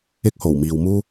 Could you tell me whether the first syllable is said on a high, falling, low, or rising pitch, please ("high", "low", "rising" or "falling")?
high